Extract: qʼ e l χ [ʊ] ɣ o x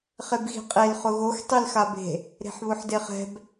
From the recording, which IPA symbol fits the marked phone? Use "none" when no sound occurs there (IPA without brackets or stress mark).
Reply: ʊ